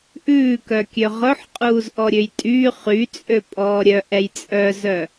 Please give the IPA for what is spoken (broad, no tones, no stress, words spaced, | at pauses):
ʔʉːkœkʲø ʁɵħqʼuːzʔɔɾʲøj tʼy χyt͡sʼøpʼɔː ɾʲœʔɛj t͡sʼœzœ